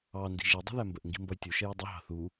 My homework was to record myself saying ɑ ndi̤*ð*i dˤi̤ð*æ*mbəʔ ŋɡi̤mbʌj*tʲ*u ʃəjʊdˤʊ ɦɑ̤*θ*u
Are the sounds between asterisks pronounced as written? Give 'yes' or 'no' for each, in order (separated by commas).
no, yes, yes, yes